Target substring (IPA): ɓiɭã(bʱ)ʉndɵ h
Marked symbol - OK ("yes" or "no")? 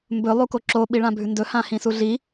yes